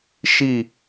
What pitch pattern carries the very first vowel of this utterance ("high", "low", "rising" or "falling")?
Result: falling